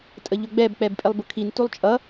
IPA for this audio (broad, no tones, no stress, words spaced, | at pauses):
tʼəʎʊɡ͡bɛb k͡pɛbpʼɪlˠbʊkʰin tulˠt͡ʃʼʌ